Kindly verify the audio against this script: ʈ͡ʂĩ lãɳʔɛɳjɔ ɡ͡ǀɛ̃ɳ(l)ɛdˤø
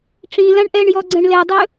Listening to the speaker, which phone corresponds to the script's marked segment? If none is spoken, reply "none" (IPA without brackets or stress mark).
l